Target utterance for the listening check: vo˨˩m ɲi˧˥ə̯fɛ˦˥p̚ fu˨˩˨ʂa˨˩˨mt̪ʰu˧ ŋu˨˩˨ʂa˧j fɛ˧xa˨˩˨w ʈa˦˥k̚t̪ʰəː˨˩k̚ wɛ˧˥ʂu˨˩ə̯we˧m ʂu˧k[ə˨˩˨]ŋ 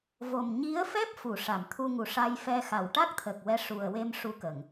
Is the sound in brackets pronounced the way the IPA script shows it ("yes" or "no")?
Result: yes